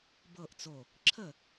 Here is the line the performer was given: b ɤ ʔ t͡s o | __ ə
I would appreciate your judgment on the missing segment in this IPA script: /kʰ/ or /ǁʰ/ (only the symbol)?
ǁʰ